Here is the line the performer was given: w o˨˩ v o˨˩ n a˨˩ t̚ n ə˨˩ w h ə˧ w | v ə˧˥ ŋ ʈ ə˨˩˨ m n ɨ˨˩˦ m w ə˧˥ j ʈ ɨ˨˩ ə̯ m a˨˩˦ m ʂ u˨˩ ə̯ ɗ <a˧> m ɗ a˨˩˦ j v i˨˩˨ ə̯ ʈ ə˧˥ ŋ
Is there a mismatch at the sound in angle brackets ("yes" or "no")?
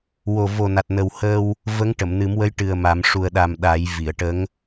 yes